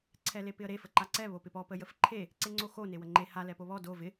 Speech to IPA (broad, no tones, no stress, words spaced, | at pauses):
ǀʰɛlepɪə̯ɾe fəǃaǀɛ βopɪpɔ pəjəfǃʰe | ǀeŋ͡ǀoxo newəŋ͡ǃe ha lɛpoβɔ do vɪ